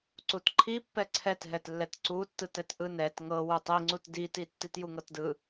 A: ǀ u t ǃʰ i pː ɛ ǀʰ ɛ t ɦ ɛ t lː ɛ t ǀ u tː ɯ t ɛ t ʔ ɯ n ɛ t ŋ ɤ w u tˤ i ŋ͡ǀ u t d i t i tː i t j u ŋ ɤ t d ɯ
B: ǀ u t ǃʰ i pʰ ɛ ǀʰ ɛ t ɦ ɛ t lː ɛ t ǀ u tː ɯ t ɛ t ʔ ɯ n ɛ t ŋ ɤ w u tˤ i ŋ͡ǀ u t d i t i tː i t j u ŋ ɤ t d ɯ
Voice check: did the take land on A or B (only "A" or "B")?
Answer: A